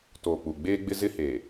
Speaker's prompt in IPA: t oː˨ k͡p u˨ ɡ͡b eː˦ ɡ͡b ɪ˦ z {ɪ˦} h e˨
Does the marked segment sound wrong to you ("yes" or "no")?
no